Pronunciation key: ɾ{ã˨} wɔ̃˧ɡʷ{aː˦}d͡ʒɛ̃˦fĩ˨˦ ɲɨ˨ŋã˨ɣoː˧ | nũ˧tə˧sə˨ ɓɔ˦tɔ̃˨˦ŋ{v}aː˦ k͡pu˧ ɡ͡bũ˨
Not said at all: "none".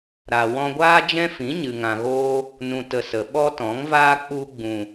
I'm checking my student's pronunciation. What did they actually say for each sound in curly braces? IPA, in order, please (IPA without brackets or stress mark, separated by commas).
a˨, aː˦, v